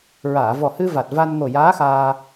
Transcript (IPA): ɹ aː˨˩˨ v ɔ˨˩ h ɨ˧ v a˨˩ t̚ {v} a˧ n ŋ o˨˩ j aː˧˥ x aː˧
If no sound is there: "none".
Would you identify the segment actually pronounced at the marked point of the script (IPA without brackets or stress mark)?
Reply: v